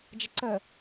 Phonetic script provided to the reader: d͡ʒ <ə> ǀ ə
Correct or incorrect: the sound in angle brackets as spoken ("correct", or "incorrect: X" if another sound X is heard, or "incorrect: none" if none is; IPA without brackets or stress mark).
correct